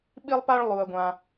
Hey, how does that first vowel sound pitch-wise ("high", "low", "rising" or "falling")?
high